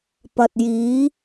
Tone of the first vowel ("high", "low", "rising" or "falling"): low